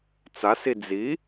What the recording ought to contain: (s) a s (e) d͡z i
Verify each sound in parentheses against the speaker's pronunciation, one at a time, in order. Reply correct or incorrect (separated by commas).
incorrect, incorrect